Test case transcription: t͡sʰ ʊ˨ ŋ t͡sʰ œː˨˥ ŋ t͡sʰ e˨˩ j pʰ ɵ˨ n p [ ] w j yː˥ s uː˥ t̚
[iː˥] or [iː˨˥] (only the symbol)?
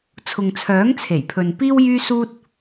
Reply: iː˥